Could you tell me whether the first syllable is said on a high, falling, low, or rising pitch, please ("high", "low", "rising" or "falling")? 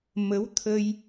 rising